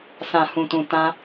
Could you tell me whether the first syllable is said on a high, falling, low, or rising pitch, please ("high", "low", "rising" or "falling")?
low